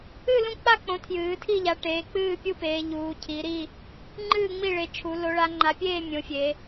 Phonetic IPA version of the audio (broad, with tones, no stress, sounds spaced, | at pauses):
ɨ˥˨ l ũ˥˨ k͡p a˥˨ k͡p õ˩˧ tʰ j ɨː˩˧ tʰ i˥˨ ʎ a˩˧ ʈ eː˩˧ k͡p ɨː˥˨ pʲ u˥˨ p eː˩˧ ʎ uː˩˧ cʰ i˩˧ ɾ i˥˨ | ŋ͡ǃ ɨː˥˨ ŋ͡m i˥˨ ɭ e˩˧ t͡ʃʰ u˩˧ l o˩˧ ɭ a˩˧ ŋ͡ǃ a˩˧ pʲ eː˥˨ mʲ õ˩˧ fʲ e˩˧